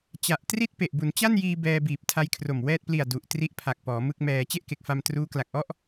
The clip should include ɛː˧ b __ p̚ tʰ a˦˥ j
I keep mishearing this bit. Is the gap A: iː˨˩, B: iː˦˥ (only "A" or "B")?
A